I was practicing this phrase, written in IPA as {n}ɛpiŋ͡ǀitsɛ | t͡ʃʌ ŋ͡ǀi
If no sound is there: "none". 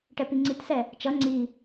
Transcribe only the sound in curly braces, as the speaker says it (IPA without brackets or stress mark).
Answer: ʈ